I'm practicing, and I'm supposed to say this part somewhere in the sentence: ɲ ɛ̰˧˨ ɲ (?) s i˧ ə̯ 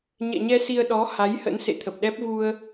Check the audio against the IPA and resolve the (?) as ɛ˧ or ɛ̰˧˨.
ɛ˧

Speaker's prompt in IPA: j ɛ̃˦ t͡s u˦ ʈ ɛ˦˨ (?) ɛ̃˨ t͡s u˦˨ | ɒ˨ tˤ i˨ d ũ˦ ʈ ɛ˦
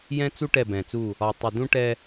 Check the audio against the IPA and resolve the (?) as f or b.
b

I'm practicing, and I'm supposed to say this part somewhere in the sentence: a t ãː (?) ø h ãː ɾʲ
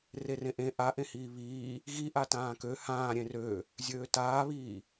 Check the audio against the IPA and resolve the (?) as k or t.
k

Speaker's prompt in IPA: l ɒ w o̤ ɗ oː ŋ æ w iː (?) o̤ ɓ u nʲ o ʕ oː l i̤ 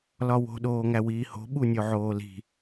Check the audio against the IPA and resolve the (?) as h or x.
h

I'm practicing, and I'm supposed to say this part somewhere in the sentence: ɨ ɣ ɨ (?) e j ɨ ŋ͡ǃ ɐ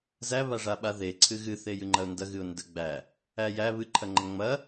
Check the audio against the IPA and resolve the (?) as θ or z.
θ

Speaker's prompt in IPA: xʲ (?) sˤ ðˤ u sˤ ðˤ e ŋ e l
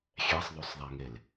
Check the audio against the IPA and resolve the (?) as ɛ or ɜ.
ɛ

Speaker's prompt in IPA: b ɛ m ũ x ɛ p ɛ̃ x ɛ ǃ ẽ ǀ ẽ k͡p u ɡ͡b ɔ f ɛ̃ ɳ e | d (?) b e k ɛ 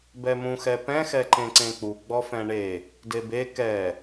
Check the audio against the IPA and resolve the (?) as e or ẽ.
e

